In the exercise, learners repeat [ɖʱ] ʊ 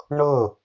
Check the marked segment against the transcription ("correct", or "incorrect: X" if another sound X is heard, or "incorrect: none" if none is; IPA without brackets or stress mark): incorrect: ɳ